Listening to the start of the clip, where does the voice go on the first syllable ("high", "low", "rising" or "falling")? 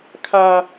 high